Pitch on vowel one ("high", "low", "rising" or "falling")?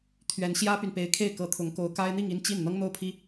rising